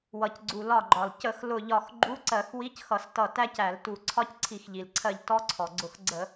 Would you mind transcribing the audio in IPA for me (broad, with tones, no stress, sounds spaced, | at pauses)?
w ʌ˩ c ɡ͡ǀ u˩ l ɒ˧˩ ɡ͡ǃ ɒ˩ l c ə˧˩˧ x l ʊ˧˩ ʎ ɒ˧˩ x ɡ͡ǃ u˧˥˧ ǀ ɜ˧˩˧ x w i˧˥˧ c x ʌ˧˩˧ s t ʌ˧˩ t æ˦˥ c æ˧˩˧ l t u˧˩ ǀʰ ɒ˦˥ c ǀʰ i˧˩˧ x ʎ i˩ l ǀʰ ɜ˧˩ ʎ t ɔ˦˥ ǀʰ ɔ˩ ɡ͡ǀ ʊ˧˩ x ɡ͡ǀ ə˧˩˧